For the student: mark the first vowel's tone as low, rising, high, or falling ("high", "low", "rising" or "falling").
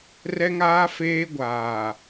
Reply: high